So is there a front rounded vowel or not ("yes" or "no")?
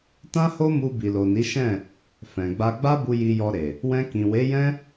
no